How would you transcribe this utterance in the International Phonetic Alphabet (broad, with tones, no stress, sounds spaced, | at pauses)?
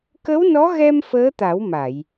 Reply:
k ə˧˥ w n ɔ˧˥ ɣ ɛ˧ m f əː˧˥ t̪ a˨˩˦ w m a˨˩˨ j